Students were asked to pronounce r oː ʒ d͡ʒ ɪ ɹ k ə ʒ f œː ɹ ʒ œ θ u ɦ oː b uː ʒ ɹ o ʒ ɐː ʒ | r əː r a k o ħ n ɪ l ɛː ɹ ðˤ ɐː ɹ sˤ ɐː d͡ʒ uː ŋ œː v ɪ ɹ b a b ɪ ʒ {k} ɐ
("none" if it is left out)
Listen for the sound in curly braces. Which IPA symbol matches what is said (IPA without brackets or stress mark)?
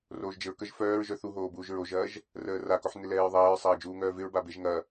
ŋ